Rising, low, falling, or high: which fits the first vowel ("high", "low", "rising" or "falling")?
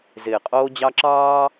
low